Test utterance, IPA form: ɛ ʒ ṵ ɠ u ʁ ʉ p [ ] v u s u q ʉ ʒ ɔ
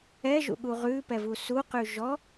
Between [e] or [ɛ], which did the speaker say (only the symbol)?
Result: ɛ